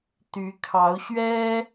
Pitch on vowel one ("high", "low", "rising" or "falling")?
rising